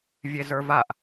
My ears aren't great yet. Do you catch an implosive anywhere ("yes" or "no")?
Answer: no